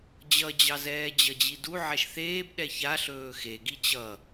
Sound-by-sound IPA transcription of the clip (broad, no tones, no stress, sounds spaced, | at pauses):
d͡ʑ ʌ d͡ʑ ɑ z ɛː d͡ʑ ʌ d͡ʑ i d u ʕ ɛ ʃ θ eː b ɗ ɛ ç a ɬ ɵː x e ɡ i t͡ɕ ʌ